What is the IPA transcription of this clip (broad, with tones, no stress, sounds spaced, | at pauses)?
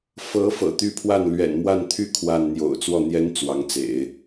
f ɤ˧˥ f ɤ̰˨˩ t̪ y˥ pʰ w a˥˩ n l ɥ ɛ̰˨˩ n m w a˥˧ n t̪ʰ y˥˧ kʰ w a˥˩ n n̪ j o̰˨˩ ʊ̯ t͡s w ɔ˥˩ n̪ j ɛ˥ n t͡s w ɑ˧˥ ŋ t͡s ḛ˨˩˦ ɪ̯